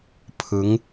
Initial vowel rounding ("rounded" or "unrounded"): unrounded